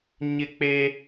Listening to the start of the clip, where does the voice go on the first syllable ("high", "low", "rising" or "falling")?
high